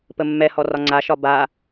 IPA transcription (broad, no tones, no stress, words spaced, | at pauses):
pəmːɛhɔ rɒŋ͡ǀaʃɒ ba